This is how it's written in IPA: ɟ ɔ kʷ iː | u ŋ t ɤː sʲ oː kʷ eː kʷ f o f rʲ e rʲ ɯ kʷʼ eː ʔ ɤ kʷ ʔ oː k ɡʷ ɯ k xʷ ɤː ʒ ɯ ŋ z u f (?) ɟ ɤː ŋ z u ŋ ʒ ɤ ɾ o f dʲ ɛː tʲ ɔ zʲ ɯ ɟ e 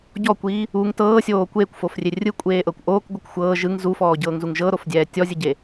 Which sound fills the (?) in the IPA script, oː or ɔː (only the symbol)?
ɔː